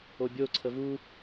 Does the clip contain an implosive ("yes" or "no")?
no